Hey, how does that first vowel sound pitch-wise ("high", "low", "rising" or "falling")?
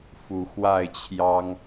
rising